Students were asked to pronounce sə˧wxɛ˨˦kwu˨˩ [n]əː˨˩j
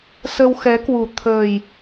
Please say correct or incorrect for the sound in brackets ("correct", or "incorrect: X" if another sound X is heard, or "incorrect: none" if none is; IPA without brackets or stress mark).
incorrect: t̪ʰ